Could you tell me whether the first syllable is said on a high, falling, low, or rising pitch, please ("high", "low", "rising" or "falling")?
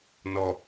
low